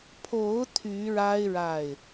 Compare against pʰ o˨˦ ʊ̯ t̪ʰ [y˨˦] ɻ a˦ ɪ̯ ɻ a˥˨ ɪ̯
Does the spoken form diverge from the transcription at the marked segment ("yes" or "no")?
no